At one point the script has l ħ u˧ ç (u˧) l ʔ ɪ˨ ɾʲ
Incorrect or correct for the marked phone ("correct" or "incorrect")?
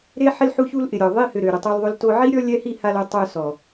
correct